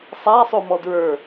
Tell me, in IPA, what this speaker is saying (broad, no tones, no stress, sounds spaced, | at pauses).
sˤ a sˤ o m ɔ d ɹ ə˞